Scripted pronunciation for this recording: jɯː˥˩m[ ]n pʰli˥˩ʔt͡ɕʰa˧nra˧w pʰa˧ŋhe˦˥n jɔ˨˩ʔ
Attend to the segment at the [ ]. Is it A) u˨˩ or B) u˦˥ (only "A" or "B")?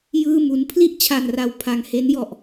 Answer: B